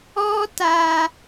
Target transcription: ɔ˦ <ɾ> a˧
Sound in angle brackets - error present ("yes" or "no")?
yes